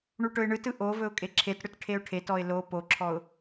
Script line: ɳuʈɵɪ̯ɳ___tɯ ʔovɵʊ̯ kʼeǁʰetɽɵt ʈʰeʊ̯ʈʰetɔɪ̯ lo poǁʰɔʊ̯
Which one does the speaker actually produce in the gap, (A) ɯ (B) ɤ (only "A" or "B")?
A